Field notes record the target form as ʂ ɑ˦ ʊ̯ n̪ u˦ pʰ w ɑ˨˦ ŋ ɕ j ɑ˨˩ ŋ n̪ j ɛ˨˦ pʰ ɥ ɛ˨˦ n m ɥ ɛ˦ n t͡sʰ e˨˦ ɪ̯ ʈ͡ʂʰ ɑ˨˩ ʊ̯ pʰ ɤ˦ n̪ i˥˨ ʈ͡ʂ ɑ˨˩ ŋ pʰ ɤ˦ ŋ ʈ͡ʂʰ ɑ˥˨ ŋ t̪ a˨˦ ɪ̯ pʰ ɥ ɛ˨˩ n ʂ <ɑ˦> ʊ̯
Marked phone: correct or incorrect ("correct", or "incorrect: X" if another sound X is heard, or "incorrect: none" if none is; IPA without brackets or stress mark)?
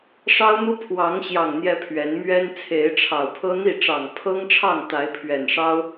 correct